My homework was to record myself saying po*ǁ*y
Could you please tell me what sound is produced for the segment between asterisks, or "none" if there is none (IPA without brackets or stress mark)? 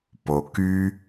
k